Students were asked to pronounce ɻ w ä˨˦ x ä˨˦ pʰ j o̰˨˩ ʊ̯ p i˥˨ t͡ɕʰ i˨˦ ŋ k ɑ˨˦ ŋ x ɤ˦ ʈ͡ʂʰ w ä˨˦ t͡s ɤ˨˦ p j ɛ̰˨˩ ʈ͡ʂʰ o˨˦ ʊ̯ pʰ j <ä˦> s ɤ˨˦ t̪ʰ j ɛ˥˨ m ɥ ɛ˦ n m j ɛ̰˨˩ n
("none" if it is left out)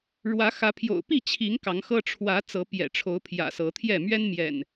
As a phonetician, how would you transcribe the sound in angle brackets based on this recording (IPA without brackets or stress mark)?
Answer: ä̰˨˩